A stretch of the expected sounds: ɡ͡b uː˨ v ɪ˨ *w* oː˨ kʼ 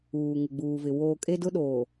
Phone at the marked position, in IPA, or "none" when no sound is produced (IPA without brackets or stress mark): w